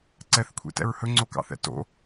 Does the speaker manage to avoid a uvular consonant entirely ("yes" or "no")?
yes